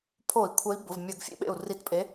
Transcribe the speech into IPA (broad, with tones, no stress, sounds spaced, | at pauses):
pʰ o˧˩˧ i̯ kʷʰ ə˨˦ i̯ b ʊ˩˧˩ v mʲ ɜ˧˩˧ ɡ fʲ ḛ˥ ɓ ḛ˧˩ u̯ r i˨˦ t pʼ e˨˦